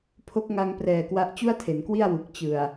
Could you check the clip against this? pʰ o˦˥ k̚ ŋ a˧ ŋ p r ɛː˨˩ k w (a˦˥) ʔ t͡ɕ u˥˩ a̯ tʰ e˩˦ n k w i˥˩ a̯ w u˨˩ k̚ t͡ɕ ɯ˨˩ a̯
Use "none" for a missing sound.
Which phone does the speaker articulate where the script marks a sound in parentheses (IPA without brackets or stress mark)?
a˦˥